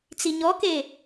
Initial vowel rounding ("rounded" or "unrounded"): unrounded